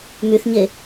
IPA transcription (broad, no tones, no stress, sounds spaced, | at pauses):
m y θ ɲ e